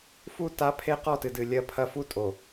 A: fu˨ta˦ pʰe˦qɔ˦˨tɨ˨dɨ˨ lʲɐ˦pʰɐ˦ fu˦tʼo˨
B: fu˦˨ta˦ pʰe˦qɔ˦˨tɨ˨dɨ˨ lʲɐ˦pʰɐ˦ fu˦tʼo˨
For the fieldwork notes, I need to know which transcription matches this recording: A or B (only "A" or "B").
B